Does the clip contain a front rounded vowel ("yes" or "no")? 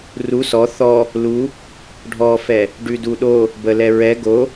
no